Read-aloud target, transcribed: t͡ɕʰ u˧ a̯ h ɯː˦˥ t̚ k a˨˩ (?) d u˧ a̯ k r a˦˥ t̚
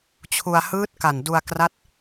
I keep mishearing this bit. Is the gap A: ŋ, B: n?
B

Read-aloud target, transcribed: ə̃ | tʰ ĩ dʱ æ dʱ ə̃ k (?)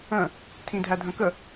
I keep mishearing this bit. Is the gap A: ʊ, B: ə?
B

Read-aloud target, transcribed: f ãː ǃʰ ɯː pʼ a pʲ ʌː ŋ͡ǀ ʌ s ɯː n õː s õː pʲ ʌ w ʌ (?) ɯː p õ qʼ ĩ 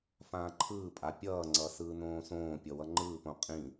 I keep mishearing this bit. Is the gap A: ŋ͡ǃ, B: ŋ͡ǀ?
A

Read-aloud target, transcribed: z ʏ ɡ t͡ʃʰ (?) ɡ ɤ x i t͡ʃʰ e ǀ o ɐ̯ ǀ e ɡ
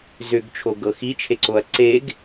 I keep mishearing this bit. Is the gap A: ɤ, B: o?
B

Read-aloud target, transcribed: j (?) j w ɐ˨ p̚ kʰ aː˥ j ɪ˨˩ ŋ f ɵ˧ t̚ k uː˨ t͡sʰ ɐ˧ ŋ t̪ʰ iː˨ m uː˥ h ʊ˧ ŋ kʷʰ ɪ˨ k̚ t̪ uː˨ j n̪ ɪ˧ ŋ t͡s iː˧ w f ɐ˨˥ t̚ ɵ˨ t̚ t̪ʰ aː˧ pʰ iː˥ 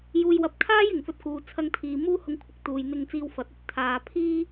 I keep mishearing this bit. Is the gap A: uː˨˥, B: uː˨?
B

